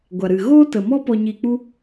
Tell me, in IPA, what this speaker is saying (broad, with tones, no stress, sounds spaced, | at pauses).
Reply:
ɡʷ a˨ ɾ ɨ˨ ɣ oː˦ t ə˨ m ɔ˦ p ɔ˧ ɲ i˧ k͡p u˦